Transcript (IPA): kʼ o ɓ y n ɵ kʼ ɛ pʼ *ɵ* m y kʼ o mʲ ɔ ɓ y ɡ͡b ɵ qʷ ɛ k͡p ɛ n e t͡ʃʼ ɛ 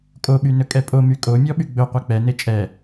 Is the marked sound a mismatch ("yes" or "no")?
yes